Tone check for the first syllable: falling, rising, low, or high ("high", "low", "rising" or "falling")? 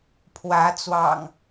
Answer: rising